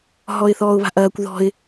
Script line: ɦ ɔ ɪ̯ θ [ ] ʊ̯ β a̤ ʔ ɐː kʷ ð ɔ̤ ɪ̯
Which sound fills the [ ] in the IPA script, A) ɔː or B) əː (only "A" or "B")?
A